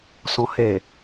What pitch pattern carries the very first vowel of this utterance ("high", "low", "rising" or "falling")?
low